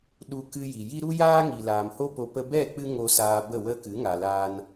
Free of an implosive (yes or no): no